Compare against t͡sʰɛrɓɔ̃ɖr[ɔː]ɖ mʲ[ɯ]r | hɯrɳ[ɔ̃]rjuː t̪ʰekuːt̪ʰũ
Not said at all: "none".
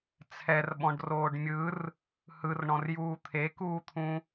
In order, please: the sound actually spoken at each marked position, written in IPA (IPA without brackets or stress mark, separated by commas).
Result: oː, ɯ, ɔ̃